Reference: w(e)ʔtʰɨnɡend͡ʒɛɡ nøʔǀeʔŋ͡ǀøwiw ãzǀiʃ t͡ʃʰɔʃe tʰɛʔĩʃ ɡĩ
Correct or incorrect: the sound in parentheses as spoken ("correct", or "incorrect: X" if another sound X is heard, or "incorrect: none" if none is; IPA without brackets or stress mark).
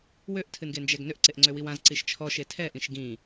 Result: incorrect: ø